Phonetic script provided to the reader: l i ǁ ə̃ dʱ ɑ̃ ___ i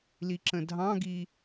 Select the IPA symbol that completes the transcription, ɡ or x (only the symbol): ɡ